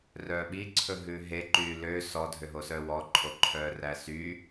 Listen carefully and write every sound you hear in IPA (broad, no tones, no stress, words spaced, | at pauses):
rœːɓiǀʰɵ ɦʉɦe ǃyːlø sɔ dʱøɦosœːwɔ ǃʰoǃʰœːræsy